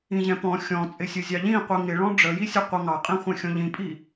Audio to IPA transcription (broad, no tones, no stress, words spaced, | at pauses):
ĩʑɛ̃pɔ̃ xʲɔ̃t͡sʼɪsʲʊ zʲɑʎĩ qʷiŋɪ ɭɔ̃ɖ͡ʐəjisʲə qʷʌŋɑqʼĩ χʷɛ̃xʲɔ̃ʎĩpʼi